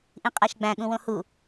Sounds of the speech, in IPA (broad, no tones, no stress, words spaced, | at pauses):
ʔĩqʼæʃɡ͡bæ̃ ɠũwõhu